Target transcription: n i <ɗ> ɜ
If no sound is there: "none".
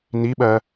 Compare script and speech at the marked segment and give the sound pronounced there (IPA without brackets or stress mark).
ɓ